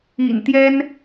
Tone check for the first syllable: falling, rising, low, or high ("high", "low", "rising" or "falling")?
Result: low